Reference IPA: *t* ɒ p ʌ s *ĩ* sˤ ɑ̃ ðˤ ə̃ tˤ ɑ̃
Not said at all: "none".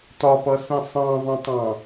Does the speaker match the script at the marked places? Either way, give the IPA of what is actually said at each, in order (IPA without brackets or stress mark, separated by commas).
t, ĩ